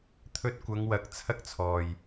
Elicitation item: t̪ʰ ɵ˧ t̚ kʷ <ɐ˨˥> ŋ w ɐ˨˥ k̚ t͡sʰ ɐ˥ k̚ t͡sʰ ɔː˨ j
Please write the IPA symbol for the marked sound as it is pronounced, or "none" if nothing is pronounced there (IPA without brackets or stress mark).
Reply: ɐ˨˧